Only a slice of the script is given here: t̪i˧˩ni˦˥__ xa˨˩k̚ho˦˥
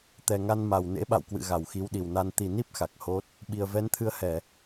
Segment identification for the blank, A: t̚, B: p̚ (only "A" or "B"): B